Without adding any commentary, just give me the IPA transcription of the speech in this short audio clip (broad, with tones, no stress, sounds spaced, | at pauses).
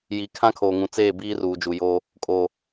j i˨ kʰ ã˦ kʰ oː˨ ŋ ũ˨ t͡s eː˦˨ b iː˦ r uː˨ d͡ʒ u˨ j oː˦ | kʼ oː˨